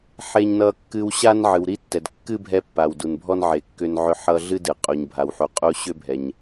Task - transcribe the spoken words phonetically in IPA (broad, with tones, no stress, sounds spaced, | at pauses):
ħ e˦ ɲ n ʌ˦ kː ɨ˦ w ɕ a˥ n ʕ ɨ˨ w ɾ i˥ tː ɛ˨ d kː ɨ˥ bʱ ɛ˦ pː a˨ w d u˨ n bʱ ɔ˥ n ʕ e˨ kː ʏ˦ n ʕ ʏ˦ ħ ʌ˦ ɮ ɨ˥ d ɨ˩ qʼ u˨ ɲ bʱ a˨ w ħ u˨ qʼ u˦ ɕ ʏ˥ bʱ ɛ˨ ɲ